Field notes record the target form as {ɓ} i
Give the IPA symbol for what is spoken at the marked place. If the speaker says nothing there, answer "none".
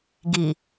ɡ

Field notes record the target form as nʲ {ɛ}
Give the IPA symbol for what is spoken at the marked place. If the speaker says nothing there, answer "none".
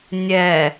ɛ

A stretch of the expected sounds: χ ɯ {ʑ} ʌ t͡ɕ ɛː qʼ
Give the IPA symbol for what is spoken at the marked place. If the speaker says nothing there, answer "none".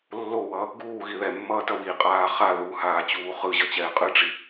ʑ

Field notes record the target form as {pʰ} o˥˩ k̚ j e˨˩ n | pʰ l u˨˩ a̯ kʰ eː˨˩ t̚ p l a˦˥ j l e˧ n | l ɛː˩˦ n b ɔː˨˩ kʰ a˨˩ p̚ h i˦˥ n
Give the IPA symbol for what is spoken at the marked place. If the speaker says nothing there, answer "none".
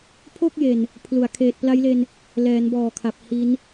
pʰ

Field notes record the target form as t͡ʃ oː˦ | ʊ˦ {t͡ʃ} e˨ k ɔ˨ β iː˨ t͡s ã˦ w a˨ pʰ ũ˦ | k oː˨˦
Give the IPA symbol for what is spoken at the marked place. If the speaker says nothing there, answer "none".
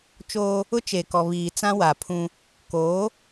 t͡ʃ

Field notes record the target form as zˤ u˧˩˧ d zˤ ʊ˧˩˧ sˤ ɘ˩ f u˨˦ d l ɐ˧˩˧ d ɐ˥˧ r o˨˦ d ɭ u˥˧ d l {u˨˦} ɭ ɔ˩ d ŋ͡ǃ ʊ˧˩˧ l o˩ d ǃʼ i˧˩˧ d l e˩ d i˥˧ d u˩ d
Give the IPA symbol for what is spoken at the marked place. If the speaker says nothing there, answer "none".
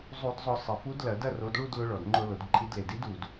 ʊ˨˦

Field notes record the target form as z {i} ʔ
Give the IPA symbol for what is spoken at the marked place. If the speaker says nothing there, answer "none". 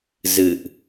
ɨ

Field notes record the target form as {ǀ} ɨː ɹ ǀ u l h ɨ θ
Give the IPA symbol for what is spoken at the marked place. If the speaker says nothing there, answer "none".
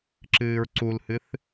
ǁ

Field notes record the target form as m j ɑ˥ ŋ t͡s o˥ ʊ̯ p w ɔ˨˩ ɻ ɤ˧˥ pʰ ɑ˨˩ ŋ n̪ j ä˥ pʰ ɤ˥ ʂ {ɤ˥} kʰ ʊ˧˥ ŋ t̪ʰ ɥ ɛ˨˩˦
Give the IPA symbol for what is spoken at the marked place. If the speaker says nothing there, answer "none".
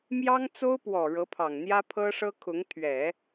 ɤ˥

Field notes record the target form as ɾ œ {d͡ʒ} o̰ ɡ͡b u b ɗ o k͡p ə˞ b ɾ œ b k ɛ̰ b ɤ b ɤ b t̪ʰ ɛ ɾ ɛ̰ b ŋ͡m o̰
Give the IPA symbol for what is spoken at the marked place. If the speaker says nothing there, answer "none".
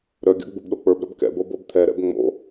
ɡʲ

